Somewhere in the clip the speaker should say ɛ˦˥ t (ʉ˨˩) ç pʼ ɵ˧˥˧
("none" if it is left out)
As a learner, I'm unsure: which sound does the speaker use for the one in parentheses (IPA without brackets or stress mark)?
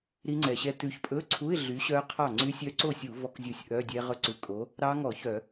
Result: ʉ˨˥